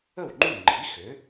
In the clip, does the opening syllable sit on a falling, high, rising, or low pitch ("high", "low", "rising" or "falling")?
falling